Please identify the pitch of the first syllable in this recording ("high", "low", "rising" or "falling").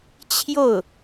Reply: falling